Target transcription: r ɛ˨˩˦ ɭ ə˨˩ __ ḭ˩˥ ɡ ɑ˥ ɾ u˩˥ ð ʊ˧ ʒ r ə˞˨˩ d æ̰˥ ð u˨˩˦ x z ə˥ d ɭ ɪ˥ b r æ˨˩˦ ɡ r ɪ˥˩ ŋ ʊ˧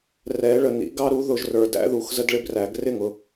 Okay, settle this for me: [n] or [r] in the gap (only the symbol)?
n